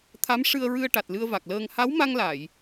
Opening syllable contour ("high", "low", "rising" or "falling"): rising